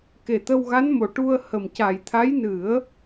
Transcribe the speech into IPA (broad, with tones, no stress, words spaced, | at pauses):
ke˨˩t̪ə˧wɣa˧˥nmo˨˩˨ ʈu˧ə̯hə˨˩m ca˨˩j t̪ʰa˧˥jnɨ˨˩˦ə̯